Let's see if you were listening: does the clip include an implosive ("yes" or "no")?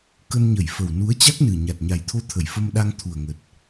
yes